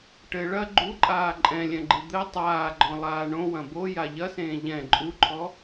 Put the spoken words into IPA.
ʈɘ ɭɐ ɡ͡ǃuǃʼaː ǃʼɛ̃lʲɛ̃ɡ͡ǃɨ d̪ɘ tˤaːɡ͡ǃɔ̃lˠaː ɳõwɐ̃ boja ʎɐsẽː ʎɛ̃ ǃʼuǃʰɔ

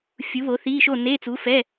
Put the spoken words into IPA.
fʲu˨˥βo˨˥θi˧˥˧ʃo˥˨ ne˧˥˧t͡su˨˥fɛ˧˥˧

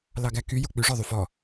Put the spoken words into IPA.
lɑɡæky jok͡pyʐɔ ðˤyfɔ

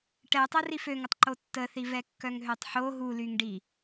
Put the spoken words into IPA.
ʈɛtˤə riføŋətˤ ǃotːəθi vɛkːœŋɦøtˤħo ɦulyŋɖi

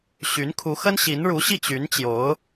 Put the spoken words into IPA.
ɕy˧˥nkʰu˧˥xə˥n ɕi˧˥nɻu˧˥ɕi˥˩ t͡ɕy˧˥n t͡ɕjo˧˥ʊ̯

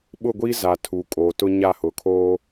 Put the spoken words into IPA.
ɓʊ˦˨ɡʷi˦ za˨tʰu˨kʼo˨tʊ˦ ɲa˦˨hʊ˨kʰoː˦

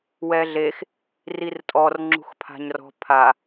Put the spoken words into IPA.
wɛɮex | rirtʼɔr ŋ͡ǁṳxpʰa̤ɲrɔ̤ pʰa

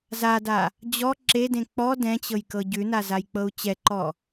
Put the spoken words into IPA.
zada | d͡ʑɔ ǁedẽ k͡pɔ dɛ̃t͡ɕɤjkɤ ɟʉnazajk͡pɤu̯ t͡ɕɛǃɔ

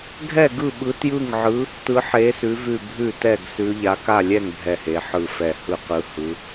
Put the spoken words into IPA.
ɡʱɛ˥˨ ɡɯ˥˨ɓɯ˧˥tjɯ˥˨ŋʕɯ˧˥ | tɯ˧˥ħe˧˥sʉ˧˥ vʉ˥˨ bʱʉ˥˨tɛ˥˨ɡ sʉ˧˥ ʎa˧˥ka˥˨lʲɛ˥˨ŋ bʱɛ˥˨he˧˥ ħɯ˥˨fɛ˥˨ hɯ˥˨qɯ˧˥hɯ˧˥

